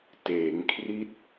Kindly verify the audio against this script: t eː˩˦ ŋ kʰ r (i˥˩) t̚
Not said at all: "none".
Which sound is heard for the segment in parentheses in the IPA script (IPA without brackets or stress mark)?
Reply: i˦˥